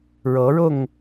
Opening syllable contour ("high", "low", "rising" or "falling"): rising